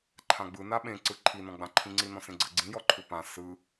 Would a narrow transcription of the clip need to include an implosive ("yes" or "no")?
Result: yes